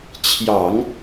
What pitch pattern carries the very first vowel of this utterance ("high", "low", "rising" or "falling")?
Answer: low